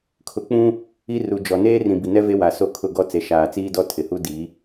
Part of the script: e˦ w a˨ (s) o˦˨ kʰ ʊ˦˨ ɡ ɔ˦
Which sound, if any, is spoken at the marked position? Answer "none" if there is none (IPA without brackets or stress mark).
s